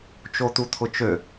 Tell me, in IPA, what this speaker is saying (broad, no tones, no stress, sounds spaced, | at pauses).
t͡ʃ o t̪ u t̪ʰ ʊ t͡ʃ ø